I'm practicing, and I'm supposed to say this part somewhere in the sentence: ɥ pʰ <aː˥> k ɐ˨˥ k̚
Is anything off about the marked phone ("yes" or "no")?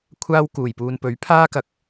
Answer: no